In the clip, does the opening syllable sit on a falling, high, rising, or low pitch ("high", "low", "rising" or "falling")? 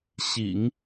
low